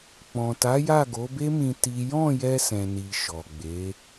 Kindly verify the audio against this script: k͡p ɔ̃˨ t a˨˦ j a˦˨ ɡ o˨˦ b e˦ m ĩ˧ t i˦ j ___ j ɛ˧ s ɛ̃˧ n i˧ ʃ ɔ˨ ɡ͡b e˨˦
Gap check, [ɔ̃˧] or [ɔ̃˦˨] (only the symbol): ɔ̃˦˨